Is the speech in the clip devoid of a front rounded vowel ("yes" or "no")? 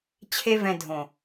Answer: yes